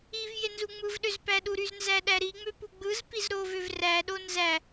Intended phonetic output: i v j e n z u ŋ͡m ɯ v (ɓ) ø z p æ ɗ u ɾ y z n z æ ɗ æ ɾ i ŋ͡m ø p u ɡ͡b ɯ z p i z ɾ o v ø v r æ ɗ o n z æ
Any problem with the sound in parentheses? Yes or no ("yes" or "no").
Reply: yes